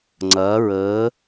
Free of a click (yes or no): no